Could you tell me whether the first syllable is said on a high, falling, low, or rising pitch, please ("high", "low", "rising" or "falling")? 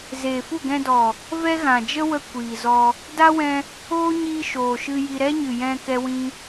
low